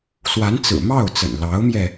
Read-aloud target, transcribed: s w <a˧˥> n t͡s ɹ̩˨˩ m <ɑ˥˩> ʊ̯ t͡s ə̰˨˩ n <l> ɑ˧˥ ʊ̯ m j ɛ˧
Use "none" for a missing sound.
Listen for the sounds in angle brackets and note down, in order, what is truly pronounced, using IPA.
a˧˥, ɑ˥˩, l

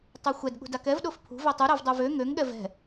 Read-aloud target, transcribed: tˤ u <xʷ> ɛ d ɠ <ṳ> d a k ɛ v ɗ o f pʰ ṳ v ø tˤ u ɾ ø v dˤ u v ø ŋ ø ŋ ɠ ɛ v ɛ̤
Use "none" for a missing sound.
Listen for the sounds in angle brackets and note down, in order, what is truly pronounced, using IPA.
xʷ, ṳ

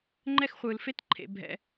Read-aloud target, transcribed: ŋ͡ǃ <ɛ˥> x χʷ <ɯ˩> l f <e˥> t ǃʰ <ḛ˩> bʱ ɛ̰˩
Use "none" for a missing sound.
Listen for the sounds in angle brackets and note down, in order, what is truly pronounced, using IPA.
ɛ˥, ɯ˩, e˥, ḛ˩

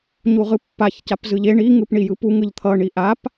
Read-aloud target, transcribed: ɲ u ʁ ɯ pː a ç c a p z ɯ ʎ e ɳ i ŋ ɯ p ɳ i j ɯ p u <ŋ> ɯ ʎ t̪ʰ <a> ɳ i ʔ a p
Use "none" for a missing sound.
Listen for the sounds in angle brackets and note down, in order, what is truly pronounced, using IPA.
ŋ, ʌ

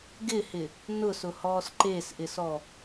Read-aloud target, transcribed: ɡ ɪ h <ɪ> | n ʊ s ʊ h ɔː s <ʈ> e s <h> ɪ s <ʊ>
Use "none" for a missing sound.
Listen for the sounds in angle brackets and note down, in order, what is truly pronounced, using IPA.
ɪ, ǃ, ʔ, ɔ

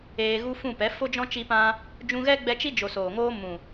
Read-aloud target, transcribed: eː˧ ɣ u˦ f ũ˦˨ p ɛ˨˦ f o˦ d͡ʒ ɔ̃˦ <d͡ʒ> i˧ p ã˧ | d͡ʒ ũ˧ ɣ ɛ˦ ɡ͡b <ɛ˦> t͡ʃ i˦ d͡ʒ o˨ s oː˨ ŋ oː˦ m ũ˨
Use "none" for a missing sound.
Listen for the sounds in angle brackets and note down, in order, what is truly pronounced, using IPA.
t͡ʃ, ɛ˧

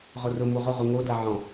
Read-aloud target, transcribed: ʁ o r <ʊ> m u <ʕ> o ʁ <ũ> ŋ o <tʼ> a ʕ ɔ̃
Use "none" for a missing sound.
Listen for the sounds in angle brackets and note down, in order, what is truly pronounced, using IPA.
ʊ, ʁ, u, d

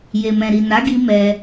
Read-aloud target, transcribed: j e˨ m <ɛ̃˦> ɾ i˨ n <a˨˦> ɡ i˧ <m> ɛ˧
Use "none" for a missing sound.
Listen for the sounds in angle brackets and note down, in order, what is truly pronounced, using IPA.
ɛ̃˨, a˨˦, m

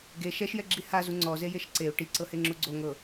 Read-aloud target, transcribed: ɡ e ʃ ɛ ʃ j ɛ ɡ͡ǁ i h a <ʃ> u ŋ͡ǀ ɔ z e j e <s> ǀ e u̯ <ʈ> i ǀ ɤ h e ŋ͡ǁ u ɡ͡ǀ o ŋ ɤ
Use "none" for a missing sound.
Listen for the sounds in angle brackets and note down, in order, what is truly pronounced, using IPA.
z, ʃ, ʈ

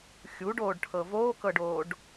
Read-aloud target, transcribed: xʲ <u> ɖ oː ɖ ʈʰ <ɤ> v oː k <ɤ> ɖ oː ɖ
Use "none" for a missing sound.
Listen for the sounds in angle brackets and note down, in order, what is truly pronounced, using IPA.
u, ɤ, ɤ

